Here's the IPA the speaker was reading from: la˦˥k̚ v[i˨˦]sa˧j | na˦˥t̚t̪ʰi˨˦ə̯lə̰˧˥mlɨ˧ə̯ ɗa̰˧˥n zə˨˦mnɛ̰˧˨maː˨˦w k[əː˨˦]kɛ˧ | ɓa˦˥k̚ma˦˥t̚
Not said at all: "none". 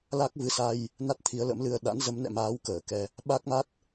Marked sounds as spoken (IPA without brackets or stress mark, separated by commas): ɨ˨˦, əː˧˩